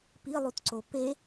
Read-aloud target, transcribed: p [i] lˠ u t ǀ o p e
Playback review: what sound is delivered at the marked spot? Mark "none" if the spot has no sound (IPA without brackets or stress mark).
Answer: i